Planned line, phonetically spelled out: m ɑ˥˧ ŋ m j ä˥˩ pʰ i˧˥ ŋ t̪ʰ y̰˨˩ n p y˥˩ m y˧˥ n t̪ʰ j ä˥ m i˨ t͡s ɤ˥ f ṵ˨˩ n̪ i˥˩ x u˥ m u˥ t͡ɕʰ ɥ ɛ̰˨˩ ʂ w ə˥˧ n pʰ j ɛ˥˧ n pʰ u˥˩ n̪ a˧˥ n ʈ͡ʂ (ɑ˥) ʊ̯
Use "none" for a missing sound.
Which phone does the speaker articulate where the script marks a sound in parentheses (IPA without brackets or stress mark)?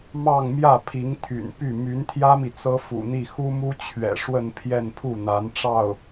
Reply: ɑ˥˩